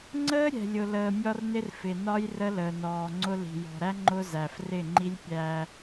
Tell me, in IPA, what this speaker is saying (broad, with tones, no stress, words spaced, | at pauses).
ŋ͡ǀəː˦ ɾʲɛ̤˨lʲʊ˨ləː˨ mʲɒ˦rnɪ˦r fɪ˨nɒ˦j rə˦ləː˨nɔː˨ŋ͡ǀʊ˦ li̤˨jɔ̤˨ɾæ˦ ŋ͡ǃʊ˦zæ˨f rɪ˦˨ŋ͡ǃi˦lʲ pʲæ˦